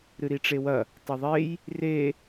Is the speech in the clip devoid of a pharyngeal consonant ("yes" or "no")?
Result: yes